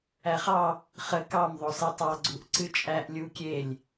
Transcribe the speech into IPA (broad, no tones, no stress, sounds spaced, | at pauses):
æ χ ɑ | χ ə k ɑ m ðˤ o s ɛ tˤ ɑ ɡ͡ǀ u ʔ ǀ ɨ t͡ʃʼ æ ʔ lʲ u kʲ e lʲ